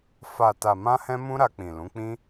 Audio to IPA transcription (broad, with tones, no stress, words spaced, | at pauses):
fa˨ ta˨mã˧hɛ̃˧mũ˧ ɾa˧k͡pĩ˨lũ˨˦k͡pĩ˦